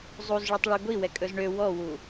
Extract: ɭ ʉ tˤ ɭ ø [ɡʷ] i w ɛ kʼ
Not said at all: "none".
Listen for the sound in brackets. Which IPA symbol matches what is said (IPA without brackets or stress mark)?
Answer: ɡʷ